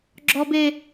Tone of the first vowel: high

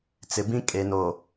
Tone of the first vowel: low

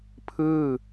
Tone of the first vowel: falling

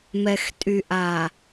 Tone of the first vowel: low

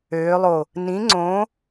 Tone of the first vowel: rising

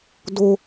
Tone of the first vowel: high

